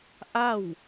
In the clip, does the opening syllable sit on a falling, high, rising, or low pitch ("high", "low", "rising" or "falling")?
falling